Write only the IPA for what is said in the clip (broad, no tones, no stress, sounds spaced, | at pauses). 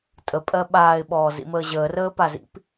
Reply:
tʼ ə pʼ ɜ ɓ aː ɪ̯ ɓ ɔː z ḭ m əː ʑ əː r əː p a z ḭ p